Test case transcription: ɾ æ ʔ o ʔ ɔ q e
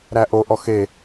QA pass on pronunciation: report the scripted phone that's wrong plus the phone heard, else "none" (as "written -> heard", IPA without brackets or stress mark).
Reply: q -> x